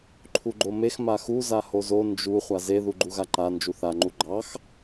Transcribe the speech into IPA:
ǃʰ u ɡ͡ǃ o m e x m a x u z a h o z o n d͡ʒ u χʷ a z e ð u ɡ͡ǃ u ɣ a ǃ a n d͡ʒ u θ a ŋ͡ǃ u ɡ͡ǃ ɑ x

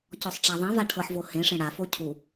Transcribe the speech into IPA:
c ɔ sˤ ʈ͡ʂ a ðˤ ɛ̃ v a ʈʰ ɤ ħ v o h ẽ ʂ ẽ ɽ a f o cʰ u

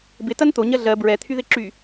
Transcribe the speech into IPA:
b ɪ t ɐ n t̪ o ɲ ɜ ɮ ɜ b ɹ ɛ t̪ʰ y ð ɪ ǁ y

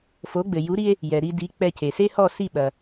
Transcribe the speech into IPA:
f o˩˥ ɡ͡b ɘ˩ j u˩˥ ɾ i˧ e̯ | j ɛ˩ ɾ i˧ d i˩˥ k͡p ɛ˧ c e˩ s e˥ h ɔ˥˩ s i˥˩ ɓ ɐ˩

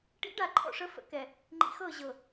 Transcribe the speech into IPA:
ʈ ḭ˨˦ ɖ a˨ ǃʰ ɔ̰˨ ʂ ə˨˦ f ə̰˨ k ɛ˨ | ŋ͡ǃ ḭ˨ x ɤ˦˨ ʑ ɤ˨

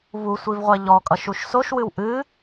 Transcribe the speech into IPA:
v u sʷ i v ʁʷ ɛ ʎ ɔ kʼ ʌ ʃ u ʃ s o ʃ w ɨ w ʔ ɨ

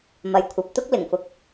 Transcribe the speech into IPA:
m ɐ˨ j kʷʰ ɐ˨ p̚ t̪ ʊ˥ k̚ l ɪ˨˩ ŋ f ʊ˨ k̚

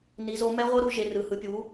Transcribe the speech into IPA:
n i˨˦ z o˨˦ m ɛ˦˥ ʁʷ ɤ˦˥ ɾ u˨˦ ʒ e˨˦ r ɯ˨˦ h ɯ˨˦ pʲ u˨˦

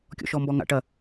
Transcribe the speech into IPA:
kʲ ɔ̰ ʃ ɔ m b ɔ ŋ a̰ ʈ ɐ

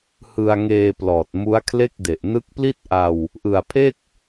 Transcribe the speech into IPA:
h ɯ˧ a̯ ŋ eː˧ p l ɔː˨˩ t̚ m u˦˥ a̯ kʰ l e˥˩ k̚ d e˨˩ ʔ n ɯ˦˥ k̚ p l i˥˩ t̚ ʔ a˧ w | ʔ ɯ˨˩ a̯ pʰ e˥˩ k̚

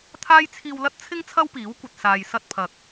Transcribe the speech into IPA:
t̪ʰ aː˥ j t͡sʰ iː˧ w l ɐ˥ t̚ t͡sʰ ɪ˥ ŋ t͡sʰ ɐ˥ w p iː˨˥ w kʷ ɐ˨ t̚ s aː˨ j s ɐ˧ t̚ pʰ ɐ˨ k̚

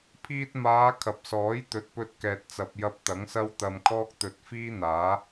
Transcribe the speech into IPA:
pʰ iː˧ t̚ m aː˨˧ kʰ ɐ˨ p̚ s ɔː˨˥ j t̪ ɵ˨˥ t̚ p ɵ˧ t̚ k ɛː˨ t̚ t͡s ɐ˨ p̚ j ɐ˧ p̚ t̪ ɐ˨˥ ŋ s ɐ˥ w t̪ ɐ˧ m kʰ ɔː˥ k̚ t̪ ɵ˧ t̚ f iː˥ n̪ aː˨˥

